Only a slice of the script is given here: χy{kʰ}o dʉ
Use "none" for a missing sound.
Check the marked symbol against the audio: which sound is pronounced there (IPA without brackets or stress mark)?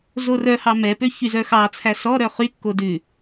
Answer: kː